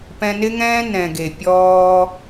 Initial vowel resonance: nasal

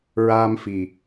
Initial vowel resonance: oral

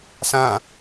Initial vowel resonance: nasal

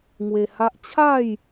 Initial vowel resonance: oral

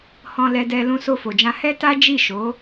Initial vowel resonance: nasal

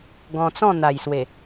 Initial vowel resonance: nasal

